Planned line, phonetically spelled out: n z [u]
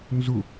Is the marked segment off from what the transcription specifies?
no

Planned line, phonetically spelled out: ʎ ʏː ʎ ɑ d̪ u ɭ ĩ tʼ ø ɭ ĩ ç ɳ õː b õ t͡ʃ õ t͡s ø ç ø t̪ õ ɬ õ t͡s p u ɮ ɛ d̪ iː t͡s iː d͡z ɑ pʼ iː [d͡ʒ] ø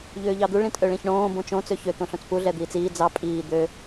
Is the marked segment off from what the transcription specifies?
yes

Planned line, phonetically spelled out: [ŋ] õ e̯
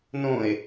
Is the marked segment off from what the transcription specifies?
yes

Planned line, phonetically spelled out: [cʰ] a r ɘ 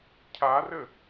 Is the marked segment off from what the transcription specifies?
no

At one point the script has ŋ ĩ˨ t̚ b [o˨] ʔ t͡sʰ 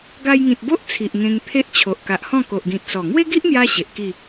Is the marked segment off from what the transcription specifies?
yes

